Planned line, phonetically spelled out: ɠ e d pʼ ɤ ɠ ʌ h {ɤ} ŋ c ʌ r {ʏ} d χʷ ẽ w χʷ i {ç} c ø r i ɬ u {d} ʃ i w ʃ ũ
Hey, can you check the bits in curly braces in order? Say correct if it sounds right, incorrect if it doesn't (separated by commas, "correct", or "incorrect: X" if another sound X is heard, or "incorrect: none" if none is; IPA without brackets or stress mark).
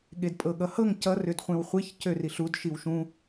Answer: correct, correct, correct, correct